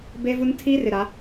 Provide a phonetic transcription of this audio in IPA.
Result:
b e˦ v u˦ n tʰ i˦ r ɪ˨ ɾ a˨˦

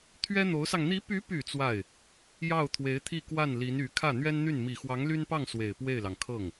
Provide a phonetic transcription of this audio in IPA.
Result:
t̪ʰ ɥ ɛ˥ n̪ o˧˥ ʊ̯ s ɑ˧ ŋ n̪ i˧˥ p y˧˥ p y˨˩ t͡s w a˥˩ ɪ̯ | j ɑ˥˩ ʊ̯ t̪ʰ w e˧˥ ɪ̯ t̪ʰ i˥˧ k w a˥˩ n l i˧˥ n y˧˥ kʰ ä˥˩ n̪ ɥ ɛ˥ n n̪ y˥˩ n m i˨˩ x w ɑ˧˥ ŋ l y˥ n p ɑ˥˩ ŋ s w e˨˩ ɪ̯ p w e˥˩ ɪ̯ l ɑ˩ ŋ kʰ ɤ˥˩ ŋ

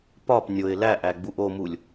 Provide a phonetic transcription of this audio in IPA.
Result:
p ɒ p nʲ o ɪ̯ l æ ʔ æ ɡ͡b u ʔ o m u lʲ

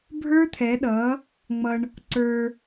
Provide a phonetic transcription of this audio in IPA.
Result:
bʱ ə˞˦ t̪ʰ ɛ˨˦ ɗ ʌ˨˦ | ŋ͡m ʌ˧ ɳ | ǀ ə˞˧

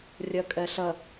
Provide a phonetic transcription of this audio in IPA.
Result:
rʲ ʌ kʼ ɜ ɬ ʌ

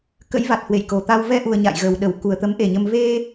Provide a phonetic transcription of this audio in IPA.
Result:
k ə̰˧˥ j v a˨˩ t̚ h w ḛ˧˨ j k o˨˩ t̪ a˧ w v ɛ˧ ʔ u˨˩ ə̯ ɲ a̰˧˨ j ɣ ə˨˩ w ɗ ə˧˩ w k u˨˩ ə̯ t̪ ə˨˦ m ʔ e˨˩ ɲ ə˧ m v e˧

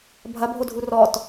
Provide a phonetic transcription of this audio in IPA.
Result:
bʱ ɐ bʱ o dʱ u r ɔ t

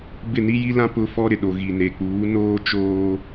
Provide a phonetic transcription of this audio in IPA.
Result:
b ɪ˦˨ n i˦ j i˦ l ã˦ p ʊ˦ f ɔ˦ ɾ ɪ˨ ɗ o˨ ɣ i˨ n e˨ k͡p uː˨˦ n oː˦ t͡ʃ oː˦

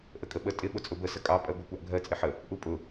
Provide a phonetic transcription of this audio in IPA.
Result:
ʔ ə kʼ ə ɓ ə tʼ ɪ ɓ ʊ t͡sʼ ʊ b ə s ə kʼ ɑ pʼ ɜ ɡʷ ɑ kʷ ɑ ʔ ɡʱ ɜ t͡sʼ ɪ ħ ə | ʔ u pʼ ʊ

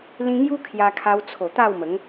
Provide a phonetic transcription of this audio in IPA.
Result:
l ĩ˦ ŋ j u˦ kʰ j a˧ kʰ a˧ w t͡sʰ o˨˩ t̪ a˥˧ w m ə˨˦ ŋ

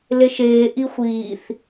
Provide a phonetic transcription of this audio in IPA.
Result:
l e ʃ eː ʔ i xʷ iː θ

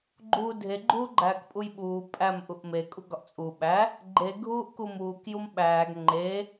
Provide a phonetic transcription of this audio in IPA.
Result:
ɡ͡ǃ uː dʱ e ɡ͡ǃ uː ɡ͡ǃ æː k pʼ u j ɓ uː pʼ æ m ʔ u ʔ m e kʼ u ɡ ɒ ʔ t͡sʼ u ɓ æ | ɡ͡ǃ e ɡʱ uː ʔ k u m uː k j u m ɓ æː ɡ ŋ͡ǃ e

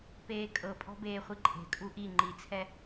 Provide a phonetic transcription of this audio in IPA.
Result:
p eː kʼ ɤ pʼ ɔ̤ b eː χʷ i ǃʼ e̤ kʼ u ʔ i ŋ͡ǃ i t͡sʰ ɛ

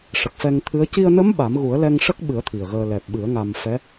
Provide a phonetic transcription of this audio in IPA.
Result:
ʂ ə˨˩ k̚ f ɛ˧ ŋ t̪ʰ ɨ˧˥ ə̯ c i˧ ə̯ n ə˧˥ m ɓ a˨˩˦ m ɣ u˨˩˦ ə̯ l ɛ˧ ŋ ʂ ə˦˥ k̚ ɓ ɨ˨˩˦ ə̯ t̪ʰ i˨˩ ə̯ ɣ əː˧ l ɛ˨˩ p̚ ɓ ɨ˨˩˦ ə̯ ŋ a˧ m f ɛ˧˥

